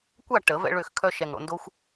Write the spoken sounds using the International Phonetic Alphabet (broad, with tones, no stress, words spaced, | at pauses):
kʷa˦˨ ʈə˨˩˦vɛ̰˦ ɭø˦˨xkʰœ˦ ʃɛ˨˩ŋɽo̰˦˨ ndo˦xʷ